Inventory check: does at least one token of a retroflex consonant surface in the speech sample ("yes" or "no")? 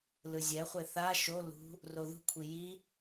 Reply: no